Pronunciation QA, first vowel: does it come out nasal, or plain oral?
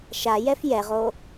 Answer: oral